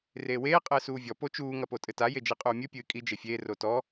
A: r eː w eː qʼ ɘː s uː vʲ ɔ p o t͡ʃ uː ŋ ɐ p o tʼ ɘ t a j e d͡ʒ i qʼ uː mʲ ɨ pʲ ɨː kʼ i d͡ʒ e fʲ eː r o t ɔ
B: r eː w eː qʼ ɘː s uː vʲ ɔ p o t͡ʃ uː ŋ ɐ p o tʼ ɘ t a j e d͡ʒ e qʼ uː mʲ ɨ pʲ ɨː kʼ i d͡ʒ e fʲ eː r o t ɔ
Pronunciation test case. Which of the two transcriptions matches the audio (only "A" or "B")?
A